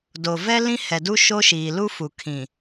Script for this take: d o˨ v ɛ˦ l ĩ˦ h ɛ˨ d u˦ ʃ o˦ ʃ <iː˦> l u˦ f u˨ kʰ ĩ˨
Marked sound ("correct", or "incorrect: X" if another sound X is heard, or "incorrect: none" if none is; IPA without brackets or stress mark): incorrect: iː˨